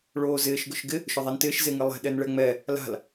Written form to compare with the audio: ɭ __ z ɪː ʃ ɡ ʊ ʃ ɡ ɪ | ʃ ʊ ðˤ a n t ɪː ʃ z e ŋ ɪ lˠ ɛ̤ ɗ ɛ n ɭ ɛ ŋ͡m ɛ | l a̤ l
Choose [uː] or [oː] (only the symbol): oː